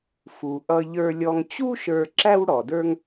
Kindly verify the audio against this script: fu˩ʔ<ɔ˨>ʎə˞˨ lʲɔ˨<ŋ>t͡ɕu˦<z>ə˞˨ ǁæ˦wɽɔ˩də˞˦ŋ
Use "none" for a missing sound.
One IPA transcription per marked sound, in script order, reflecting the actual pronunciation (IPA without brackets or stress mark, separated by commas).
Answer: ʌ˨, ŋ, ʃ